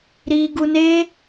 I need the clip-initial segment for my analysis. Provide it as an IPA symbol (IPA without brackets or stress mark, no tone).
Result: ɾ